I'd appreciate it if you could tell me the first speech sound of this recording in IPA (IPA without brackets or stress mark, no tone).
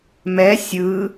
m